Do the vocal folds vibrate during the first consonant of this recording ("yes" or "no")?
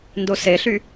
yes